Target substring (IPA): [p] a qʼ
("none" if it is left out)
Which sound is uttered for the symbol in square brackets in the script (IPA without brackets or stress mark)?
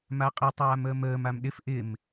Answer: m